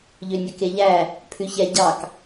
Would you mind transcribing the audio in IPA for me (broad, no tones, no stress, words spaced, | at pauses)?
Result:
ʎønʲɵkeʎæ | pʰʉçɛ ɟɑk